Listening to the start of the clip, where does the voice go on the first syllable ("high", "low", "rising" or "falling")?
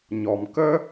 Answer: low